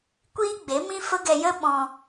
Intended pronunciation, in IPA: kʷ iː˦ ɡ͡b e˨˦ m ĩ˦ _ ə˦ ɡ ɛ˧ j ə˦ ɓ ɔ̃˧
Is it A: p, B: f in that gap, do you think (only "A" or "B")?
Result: B